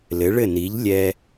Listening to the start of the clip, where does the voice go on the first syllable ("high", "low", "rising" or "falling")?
rising